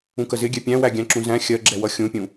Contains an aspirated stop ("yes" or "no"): no